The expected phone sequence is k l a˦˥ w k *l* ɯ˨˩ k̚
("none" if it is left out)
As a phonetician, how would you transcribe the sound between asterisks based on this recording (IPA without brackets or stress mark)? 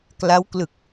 l